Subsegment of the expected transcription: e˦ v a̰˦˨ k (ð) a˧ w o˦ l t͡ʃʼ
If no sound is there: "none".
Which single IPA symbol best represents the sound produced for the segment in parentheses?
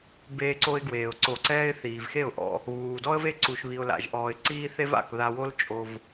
ð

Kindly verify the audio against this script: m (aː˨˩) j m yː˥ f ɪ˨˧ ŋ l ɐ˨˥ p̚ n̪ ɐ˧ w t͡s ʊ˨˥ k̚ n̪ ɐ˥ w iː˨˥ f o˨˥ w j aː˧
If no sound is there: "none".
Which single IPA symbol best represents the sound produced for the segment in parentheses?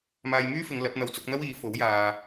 aː˧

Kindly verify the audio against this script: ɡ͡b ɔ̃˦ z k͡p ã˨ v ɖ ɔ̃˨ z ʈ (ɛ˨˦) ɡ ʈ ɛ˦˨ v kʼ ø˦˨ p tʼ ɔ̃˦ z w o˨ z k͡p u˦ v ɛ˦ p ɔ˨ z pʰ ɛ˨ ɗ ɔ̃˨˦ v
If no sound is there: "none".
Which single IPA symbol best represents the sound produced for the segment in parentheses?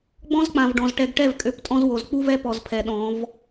ɛ˨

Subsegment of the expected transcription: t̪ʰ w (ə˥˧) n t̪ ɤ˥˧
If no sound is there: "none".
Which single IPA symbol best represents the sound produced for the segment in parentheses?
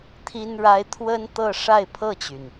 ə˥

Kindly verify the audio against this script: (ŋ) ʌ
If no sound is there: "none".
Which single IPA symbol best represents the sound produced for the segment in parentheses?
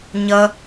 ɲ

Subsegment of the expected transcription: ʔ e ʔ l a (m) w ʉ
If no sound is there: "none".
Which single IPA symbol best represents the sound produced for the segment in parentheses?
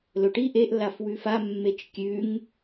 f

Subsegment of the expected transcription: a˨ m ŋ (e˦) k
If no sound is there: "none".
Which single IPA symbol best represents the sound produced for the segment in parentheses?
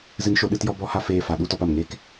e˦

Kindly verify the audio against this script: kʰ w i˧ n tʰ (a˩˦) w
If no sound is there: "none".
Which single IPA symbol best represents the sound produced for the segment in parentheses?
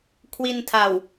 a˨˩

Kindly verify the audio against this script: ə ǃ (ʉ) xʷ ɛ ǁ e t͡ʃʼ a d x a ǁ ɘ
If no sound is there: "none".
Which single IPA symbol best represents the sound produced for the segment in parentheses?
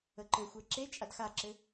ɘ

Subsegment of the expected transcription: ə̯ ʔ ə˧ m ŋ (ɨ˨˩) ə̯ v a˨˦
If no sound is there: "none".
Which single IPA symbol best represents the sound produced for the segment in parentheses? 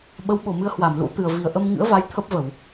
ɨ̰˧˥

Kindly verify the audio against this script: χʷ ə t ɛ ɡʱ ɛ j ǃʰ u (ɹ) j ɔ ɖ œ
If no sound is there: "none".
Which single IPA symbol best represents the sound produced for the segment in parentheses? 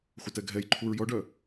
ɹ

